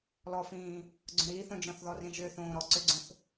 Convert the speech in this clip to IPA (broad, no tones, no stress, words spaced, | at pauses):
lɔfĩː | ɡ͡ǀõɾiːθõd͡ʒɔ̃θ ðɔrĩʒʏːθõː ɾɔ ǀʏɡ͡ǀõθ